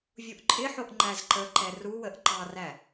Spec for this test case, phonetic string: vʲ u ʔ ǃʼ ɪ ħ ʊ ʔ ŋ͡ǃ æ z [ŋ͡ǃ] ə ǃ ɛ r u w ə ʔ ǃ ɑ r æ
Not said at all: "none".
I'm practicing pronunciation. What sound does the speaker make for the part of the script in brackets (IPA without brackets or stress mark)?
ǃ